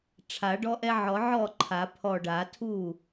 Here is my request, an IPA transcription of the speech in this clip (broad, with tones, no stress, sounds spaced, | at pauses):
ʈ͡ʂʰ a˨˩˦ ɖ ɔ˦ ʔ ɛ˦ ʕ ɔ˨˩˦ ʕ ɔ˥˩ ǃʰ a˨˩˦ pʰ ɔ˧˩ ɖ a˨˩˦ tʰ u˥˩